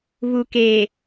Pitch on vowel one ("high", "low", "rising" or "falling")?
low